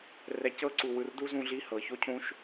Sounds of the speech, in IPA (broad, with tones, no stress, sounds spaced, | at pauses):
r ɛ˨ c ɤ˦ ǀ u˨ w ɯ˨ r d u˦ z ũ˧ ɮ i˧ h ɤ˨ ç o˦ cʰ ũ˦ ʃ